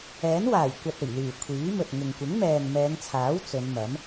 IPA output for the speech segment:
ɛː˨˥ n w aː˨˩ j kʷ ɐ˨ t̚ ɵ˨˩ ɥ l yː˨˩ kʷʰ iː˨˥ m ɵ˨ t̚ ŋ ɪ˨ ŋ kʷ ɪ˨˥ ŋ m ɛː˨ ŋ m ɛː˨˧ ŋ t͡sʰ aː˨˥ w t͡s ɵ˨˧ n m ɐ˨˥ m

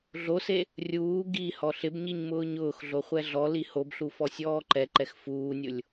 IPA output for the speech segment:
ɮ o s e | rʲ uː ɡ i h ɔ ɬ ɪ b ɲ i ɲ m ʊː ɲ ʊː x ɮ o χʷ ɛ ɮ ɔ l i h o b ɬ u f ɔ sʲ ɔː ǃ ɛ ǃ ɛ x f uː nʲ ʊ lʲ

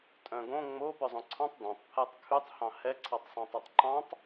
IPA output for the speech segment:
tʼ œ̃ ɡ õ ŋ͡m o p œ zˤ õ ǀʰ ɑ̃ tˤ d ɑ̃ tˤ pʰ æ tˤ kʰ ʉ tˤ h ɑ̃ h ɛ ǀʰ ɑ tˤ sˤ ɑ̃ tˤ ɛ tˤ ǃ ɑ̃ tˤ

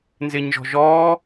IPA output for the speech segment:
n z ɪː ɲ ʒ ɔ̤ ʒ ɔː

